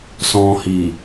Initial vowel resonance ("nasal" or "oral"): nasal